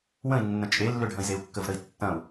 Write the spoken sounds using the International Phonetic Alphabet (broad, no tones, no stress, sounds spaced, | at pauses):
w ə̃ i̯ nː ə̃ t͡ʃʼ e lː ʏ ɖʱ ɐ̃ i̯ z e u̯ kː ə v ɾ ə i̯ tː ɐ̃ u̯